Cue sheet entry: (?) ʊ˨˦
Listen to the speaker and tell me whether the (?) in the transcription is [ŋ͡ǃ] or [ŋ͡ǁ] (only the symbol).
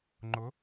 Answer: ŋ͡ǃ